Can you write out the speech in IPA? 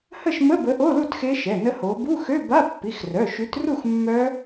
h ə˥˨ ʃ m ə˧˥˧ b ə˨˦ ʔ o˧˥˧ l u˥˨ t x e˦˥ ʃ ɛ˩˧˩ n ə˦˥ h o˨˦ b u˧˥˧ x ø˧˥˧ b a˧˥˧ pː i˩˧˩ x r œ˩˧˩ ʃ y˨˦ t r u˥˨ x mː œ˦˥

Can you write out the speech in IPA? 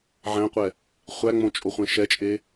ʕ æ̃ qʷ ɛ | χʷ æ ŋ͡m õ t͡ʃʼ o χʷ ẽ ʃ ɛ t͡ʃʼ e

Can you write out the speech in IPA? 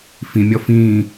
f ĩ mʲ ɔ f ĩ

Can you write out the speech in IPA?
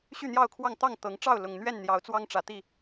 ɕ y˥˨ n̪ j ɑ˥˨ ʊ̯ kʰ w ɑ˥˨ ŋ t̪ ɑ˥˨ ŋ t̪ ɤ˨˦ ŋ ʈ͡ʂ ɑ˥˨ ʊ̯ l ʊ˨˩ ŋ n̪ ɥ ɛ˥˨ n n̪ j ɑ˨˦ ʊ̯ t͡s w ɑ˦ ŋ ʈ͡ʂ ä˨˦ t̪ i˥˨

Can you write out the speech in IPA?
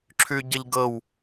ǁʰ ʉ ɟ ə ʎ ɡ ɤ w

